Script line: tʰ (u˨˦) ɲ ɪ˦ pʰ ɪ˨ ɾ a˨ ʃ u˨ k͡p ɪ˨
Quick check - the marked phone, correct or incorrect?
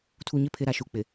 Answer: incorrect